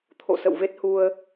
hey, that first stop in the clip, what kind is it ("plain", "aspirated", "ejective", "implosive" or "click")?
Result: aspirated